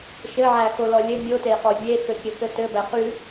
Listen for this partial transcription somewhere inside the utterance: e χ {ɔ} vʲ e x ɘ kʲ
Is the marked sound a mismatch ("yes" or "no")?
no